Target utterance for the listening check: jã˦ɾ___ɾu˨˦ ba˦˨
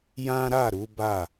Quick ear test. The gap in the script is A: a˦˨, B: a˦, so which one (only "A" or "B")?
A